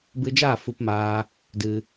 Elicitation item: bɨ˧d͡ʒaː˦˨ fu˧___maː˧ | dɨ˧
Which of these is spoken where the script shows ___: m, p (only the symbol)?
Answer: p